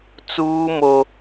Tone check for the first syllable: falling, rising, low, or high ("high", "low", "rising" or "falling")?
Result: high